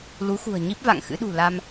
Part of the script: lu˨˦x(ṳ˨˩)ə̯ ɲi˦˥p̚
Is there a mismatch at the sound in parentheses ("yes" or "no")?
no